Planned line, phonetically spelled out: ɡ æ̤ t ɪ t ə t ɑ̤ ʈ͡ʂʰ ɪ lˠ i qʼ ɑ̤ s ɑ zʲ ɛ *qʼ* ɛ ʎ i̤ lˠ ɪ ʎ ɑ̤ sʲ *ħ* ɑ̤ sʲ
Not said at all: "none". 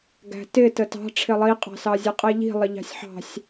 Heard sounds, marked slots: qʼ, ħ

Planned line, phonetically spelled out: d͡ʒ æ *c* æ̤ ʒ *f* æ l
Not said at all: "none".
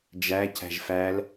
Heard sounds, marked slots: c, f

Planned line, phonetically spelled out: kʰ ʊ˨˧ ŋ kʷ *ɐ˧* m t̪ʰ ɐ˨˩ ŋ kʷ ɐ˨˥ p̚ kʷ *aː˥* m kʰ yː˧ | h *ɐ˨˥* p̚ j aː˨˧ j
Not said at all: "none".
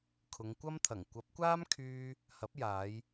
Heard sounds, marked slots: ɐ˥, aː˥, ɐ˨˥

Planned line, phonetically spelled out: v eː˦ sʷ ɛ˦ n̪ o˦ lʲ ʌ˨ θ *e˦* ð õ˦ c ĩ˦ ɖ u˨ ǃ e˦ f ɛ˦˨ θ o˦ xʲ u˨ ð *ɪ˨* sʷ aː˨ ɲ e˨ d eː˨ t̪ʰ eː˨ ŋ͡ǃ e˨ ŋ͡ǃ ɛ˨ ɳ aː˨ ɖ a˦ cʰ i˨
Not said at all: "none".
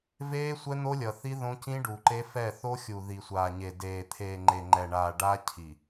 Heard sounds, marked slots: i˦, i˨

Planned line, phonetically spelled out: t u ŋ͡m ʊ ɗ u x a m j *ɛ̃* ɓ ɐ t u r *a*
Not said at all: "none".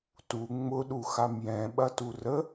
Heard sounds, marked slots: ɛ̃, ə

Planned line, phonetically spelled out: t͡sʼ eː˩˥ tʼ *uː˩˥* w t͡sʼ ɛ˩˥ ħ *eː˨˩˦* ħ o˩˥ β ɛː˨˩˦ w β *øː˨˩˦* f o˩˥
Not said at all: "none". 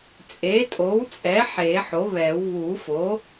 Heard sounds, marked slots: oː˩˥, eː˨˩˦, uː˨˩˦

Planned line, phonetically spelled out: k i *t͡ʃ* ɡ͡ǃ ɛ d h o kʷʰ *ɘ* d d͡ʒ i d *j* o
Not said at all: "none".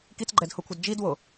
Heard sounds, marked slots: t͡s, ɘ, w

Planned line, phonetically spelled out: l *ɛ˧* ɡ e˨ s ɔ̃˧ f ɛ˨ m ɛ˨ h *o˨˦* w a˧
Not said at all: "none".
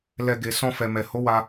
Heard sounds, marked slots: ɛ˧, o˨˦

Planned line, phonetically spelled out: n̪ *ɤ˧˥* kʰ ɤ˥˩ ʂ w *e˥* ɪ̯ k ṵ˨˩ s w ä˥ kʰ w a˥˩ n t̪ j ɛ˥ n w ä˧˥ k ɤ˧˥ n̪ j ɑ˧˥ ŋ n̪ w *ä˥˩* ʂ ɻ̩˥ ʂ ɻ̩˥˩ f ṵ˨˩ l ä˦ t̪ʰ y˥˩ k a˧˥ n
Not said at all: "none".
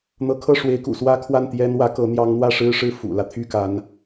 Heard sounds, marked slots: ɤ˧˥, e˧˥, ä˥˩

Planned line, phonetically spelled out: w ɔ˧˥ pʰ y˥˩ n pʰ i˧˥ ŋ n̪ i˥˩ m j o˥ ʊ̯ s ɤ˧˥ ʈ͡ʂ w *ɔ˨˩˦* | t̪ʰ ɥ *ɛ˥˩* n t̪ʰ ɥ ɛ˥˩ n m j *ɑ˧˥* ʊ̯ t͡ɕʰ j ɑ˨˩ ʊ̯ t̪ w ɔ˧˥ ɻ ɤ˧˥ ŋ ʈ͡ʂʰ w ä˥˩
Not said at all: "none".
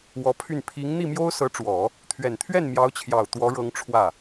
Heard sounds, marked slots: ɔ˨˩˦, ɛ˨˩, ɑ˧˥

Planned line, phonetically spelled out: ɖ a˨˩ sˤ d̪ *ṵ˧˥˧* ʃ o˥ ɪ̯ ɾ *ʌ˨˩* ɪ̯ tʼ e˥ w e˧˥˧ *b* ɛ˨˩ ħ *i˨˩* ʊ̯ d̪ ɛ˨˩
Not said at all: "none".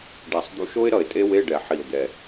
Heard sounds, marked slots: ṵ˧˥˧, ʌ˨˩, ɖ, i˨˩

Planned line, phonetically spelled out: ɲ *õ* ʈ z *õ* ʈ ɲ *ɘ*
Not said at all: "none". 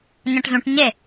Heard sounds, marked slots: ɔ̃, ũ, e

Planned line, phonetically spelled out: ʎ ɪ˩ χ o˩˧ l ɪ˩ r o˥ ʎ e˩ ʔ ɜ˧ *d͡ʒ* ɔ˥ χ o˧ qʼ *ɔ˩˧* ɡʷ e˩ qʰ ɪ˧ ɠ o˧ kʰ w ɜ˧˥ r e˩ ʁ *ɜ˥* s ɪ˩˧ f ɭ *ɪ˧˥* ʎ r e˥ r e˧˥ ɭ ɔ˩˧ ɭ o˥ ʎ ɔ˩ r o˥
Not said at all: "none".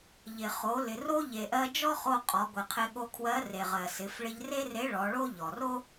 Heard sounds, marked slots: d͡ʒ, ɔ˩˧, ɜ˩, ɪ˧

